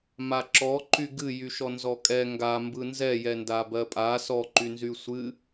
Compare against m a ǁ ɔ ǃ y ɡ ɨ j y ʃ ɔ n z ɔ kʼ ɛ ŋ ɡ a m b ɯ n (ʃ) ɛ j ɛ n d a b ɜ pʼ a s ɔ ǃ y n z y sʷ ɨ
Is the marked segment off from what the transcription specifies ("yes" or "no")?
yes